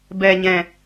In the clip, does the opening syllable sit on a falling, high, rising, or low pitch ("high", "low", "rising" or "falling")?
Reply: low